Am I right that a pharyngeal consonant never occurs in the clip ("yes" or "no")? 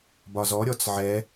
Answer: no